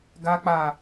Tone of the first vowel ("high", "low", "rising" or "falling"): low